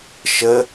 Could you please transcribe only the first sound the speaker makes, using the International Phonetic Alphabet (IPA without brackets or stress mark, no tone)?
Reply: ʃ